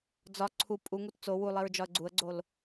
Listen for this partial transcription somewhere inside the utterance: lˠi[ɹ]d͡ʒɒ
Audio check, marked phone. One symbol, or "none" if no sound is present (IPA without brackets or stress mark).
ɹ